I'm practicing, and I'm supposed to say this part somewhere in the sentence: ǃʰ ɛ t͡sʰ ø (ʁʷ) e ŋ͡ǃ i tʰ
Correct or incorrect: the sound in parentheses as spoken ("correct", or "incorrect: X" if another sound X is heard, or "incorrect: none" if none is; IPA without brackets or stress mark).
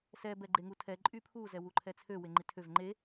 incorrect: w